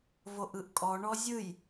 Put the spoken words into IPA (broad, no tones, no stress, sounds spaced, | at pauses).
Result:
v o ʔ ɯ ʔ kʼ ɔ ɳ ɔ zʲ ɯ j